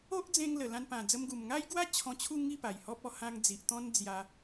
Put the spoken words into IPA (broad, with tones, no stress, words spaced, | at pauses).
o˦ʔd͡zẽ˧ŋ lə˨˩lã˧npã˨˩ d͡zə˧mɡu˨˩mŋa˦jɡwa˦ t͡ɕʰɔ̃˧t͡ɕʰu˥˧ ŋi˥˧ pa˨˩jhɔ˦p̚ɔ˧ hã˧ŋd͡zi˨ʔ t̪ɔ̃˦nd͡zja˧